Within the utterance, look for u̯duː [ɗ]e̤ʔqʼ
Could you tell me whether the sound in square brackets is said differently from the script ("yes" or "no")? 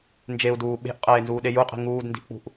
yes